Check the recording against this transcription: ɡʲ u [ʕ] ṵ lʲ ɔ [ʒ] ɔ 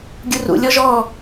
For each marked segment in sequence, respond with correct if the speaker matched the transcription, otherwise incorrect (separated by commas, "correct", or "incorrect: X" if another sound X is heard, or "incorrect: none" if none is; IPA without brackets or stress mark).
incorrect: r, correct